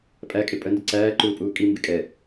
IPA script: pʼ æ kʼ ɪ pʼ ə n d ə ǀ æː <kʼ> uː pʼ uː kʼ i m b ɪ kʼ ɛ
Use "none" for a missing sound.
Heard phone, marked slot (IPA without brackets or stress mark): ǃ